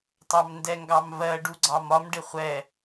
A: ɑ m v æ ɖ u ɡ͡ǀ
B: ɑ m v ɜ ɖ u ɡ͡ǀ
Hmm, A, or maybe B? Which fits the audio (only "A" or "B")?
B